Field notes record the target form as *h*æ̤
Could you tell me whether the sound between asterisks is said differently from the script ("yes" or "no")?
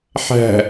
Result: yes